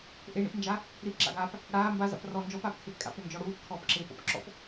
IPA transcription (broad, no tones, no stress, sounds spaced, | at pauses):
ʔ e ɳ ḭ p n d͡ʒ a | ɾ i p ǁ a̰ ɡ aː p | ɽ aː m b a z a̰ p r ɔ n d͡ʒ ɔ p aː p kʰ e p kʼ a̰ p ɾ ø n d͡ʒ ɔ ɽ uː p kʰ ɔː p ǁ eː p ɔ̰ p ǁ ɔ̰ p